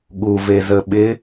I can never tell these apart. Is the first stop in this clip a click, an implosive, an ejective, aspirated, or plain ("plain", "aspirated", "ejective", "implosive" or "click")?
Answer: implosive